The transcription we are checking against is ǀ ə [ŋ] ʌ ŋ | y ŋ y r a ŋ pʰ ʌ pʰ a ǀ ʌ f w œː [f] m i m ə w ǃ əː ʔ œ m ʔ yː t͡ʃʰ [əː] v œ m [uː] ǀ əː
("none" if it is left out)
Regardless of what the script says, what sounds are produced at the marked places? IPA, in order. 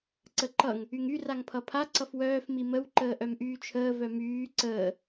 ǃ, f, əː, yː

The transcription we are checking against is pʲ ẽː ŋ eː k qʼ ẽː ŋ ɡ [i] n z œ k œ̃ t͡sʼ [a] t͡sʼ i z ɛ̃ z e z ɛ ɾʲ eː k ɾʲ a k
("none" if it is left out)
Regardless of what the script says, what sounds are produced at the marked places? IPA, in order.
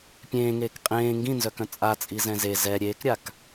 ĩ, a

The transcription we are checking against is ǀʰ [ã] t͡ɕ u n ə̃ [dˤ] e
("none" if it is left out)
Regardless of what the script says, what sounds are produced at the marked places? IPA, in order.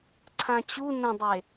ã, dˤ

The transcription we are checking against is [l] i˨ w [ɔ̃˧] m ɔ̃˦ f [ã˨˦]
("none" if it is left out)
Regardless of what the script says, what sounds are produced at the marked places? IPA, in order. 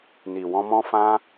n, ɔ̃˧, ã˦

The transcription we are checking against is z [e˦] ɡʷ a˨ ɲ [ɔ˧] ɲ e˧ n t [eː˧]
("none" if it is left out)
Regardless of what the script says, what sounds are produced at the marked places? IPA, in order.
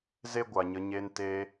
e˦, ə˧, eː˧

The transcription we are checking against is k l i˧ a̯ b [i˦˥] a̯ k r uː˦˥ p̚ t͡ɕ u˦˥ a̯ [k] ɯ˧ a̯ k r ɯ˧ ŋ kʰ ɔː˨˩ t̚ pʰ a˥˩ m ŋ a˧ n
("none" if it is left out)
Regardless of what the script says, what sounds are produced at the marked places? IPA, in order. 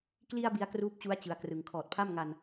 i˧, t͡ɕ

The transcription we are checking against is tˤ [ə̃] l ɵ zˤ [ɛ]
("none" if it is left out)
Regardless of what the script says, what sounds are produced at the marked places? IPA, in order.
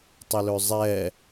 ə, ɛ

